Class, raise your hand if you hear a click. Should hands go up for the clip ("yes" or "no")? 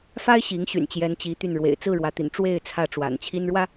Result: no